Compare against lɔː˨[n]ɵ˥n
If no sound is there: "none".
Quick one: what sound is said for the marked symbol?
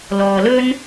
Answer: l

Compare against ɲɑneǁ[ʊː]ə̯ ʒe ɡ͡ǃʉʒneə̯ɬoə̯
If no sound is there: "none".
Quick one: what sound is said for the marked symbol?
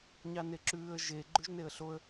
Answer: ʉː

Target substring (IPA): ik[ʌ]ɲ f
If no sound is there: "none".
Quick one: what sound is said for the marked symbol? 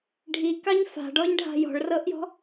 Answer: ɑ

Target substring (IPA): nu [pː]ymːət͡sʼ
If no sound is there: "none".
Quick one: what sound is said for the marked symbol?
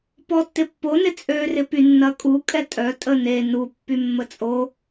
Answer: pː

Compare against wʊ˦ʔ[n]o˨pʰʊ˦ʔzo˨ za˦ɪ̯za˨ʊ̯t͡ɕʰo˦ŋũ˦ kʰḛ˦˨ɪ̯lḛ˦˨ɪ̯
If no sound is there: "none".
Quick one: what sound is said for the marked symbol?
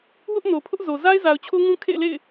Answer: n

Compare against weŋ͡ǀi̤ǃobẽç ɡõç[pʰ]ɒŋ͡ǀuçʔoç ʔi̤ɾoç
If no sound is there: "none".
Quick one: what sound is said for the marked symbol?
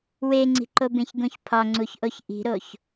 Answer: pʰ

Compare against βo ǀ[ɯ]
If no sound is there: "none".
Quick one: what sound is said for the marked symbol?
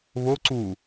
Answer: u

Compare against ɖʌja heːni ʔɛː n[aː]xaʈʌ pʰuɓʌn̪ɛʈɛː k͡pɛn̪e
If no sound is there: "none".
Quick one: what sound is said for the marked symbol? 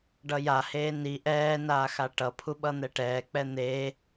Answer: aː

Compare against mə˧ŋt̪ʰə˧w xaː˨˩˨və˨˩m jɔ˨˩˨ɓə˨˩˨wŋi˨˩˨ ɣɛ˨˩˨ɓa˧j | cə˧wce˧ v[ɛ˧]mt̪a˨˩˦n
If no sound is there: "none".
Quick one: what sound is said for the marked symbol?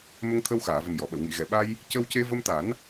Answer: ə˧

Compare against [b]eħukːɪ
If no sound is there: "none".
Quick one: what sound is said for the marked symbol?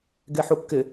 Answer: ɡ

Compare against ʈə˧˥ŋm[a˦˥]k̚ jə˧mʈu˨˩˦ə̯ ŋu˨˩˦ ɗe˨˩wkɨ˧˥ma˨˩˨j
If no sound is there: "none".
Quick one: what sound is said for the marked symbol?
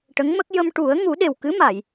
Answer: ə˦˥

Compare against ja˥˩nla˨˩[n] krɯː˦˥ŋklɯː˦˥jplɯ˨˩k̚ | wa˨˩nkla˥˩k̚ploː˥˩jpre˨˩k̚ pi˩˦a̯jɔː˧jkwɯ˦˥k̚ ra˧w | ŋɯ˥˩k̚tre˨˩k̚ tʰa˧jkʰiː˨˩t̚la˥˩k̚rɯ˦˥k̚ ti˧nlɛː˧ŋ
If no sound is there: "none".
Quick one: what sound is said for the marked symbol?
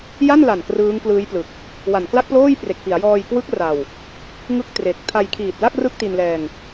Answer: n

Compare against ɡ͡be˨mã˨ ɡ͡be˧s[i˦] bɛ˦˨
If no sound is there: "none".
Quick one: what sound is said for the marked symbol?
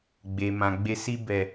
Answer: i˦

